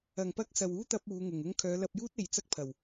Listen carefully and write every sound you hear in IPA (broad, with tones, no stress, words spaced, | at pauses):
ɐ˨˩ŋpɐ˧k̚ sɐ˨wuː˥t̪ɐ˧p̚ uː˨˧ ŋʊ˨ŋʊ˥ŋ kʰœː˨˧lɐ˧p̚juː˥t̚ e˨jt͡sɐ˥k̚pʰɐ˨˩w